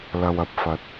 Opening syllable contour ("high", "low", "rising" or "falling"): low